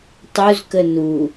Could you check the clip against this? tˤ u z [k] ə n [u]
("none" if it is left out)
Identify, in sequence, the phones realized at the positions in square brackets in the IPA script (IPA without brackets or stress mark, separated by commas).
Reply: k, u